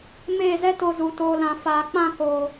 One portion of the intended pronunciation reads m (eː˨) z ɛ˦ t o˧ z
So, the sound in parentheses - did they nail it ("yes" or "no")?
no